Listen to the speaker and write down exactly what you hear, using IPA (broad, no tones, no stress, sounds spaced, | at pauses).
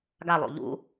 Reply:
ɡ a lˠ o̰ ʎ ṵ